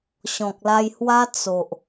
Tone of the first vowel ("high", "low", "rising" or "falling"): low